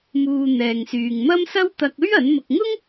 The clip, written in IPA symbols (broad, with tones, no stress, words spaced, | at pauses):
muː˨ n̪ɛː˨ŋsyː˨ŋ mɐ˥msɐ˥w t̪ɐ˧k̚ɵ˥ɥ ɐ˨˥nmʊ˧k̚ ŋʊ˥ŋ